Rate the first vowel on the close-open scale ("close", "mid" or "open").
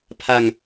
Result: open